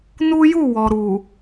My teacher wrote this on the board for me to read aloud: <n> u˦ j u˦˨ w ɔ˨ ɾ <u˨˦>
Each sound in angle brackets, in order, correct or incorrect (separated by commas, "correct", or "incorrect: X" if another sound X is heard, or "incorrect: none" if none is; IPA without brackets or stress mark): correct, incorrect: u˨